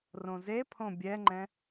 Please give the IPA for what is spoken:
rõzepʰõ bʲɛŋ͡ǃɛ̃

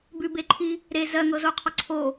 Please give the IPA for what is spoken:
bʉbeǃʰi | ɾe zɜŋɤzoqʰɔ ǀʰo

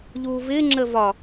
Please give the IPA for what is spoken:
ʎuvɪ ŋ͡ǁəvɒ

